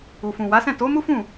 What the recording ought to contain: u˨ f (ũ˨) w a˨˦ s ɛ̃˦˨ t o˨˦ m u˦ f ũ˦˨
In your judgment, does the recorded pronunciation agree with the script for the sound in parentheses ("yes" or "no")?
yes